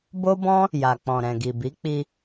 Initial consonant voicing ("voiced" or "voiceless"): voiced